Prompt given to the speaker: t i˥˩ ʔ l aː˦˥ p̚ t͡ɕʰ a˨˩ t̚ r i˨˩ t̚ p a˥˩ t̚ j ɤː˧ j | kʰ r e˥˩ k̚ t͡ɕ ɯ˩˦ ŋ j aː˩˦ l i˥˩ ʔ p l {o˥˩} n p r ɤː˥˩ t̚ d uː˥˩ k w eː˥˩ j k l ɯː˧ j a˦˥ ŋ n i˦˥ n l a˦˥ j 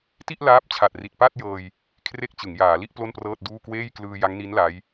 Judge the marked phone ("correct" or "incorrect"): correct